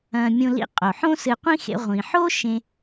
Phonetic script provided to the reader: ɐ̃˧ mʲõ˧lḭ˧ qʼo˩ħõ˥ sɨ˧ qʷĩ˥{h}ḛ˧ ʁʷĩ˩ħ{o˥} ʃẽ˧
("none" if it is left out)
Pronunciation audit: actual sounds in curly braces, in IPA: x, o˥

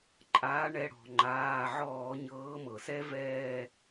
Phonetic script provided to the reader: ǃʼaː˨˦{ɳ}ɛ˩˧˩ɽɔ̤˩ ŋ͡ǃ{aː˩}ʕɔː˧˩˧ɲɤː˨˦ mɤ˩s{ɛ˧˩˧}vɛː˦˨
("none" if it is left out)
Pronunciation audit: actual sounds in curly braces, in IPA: ɳ, aː˩˧˩, ɛ˥

